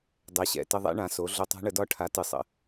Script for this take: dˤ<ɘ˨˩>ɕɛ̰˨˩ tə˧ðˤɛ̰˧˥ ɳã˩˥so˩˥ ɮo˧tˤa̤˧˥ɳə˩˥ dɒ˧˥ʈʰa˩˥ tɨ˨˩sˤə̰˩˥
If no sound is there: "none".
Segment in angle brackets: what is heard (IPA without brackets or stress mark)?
ɛ˨˩